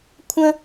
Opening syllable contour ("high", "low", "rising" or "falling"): high